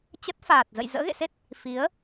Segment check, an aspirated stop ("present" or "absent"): absent